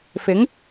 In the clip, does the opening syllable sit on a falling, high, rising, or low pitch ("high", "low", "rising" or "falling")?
rising